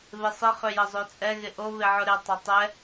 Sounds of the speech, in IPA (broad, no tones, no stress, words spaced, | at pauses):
βɪsˤɪ χøjəzˤøt͡sʼɛ ɣɪʔo βɪʕʊɾɪ tˤɐtˤɛ